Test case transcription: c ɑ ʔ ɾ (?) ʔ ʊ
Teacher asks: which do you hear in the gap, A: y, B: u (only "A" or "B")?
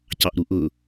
B